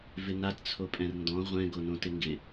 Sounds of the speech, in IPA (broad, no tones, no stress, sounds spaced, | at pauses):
v ɪ n a t t͡sʰ o pʼ ɛ̃ r n d ɔ̃ ʁʷ ɛ̃ ɡ o n õ t ɪ ŋ ɡ ɪ